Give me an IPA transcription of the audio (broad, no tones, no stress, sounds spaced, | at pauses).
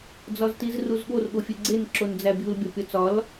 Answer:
d͡z ɒ z t i z r u z ɠ o r ɠ o fʲ e ɡ͡ǀ e n ǁ o n d͡z æ bʲ u l bʲ ɒ pʲ ɒ t͡s ɒ l